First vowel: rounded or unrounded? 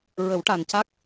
unrounded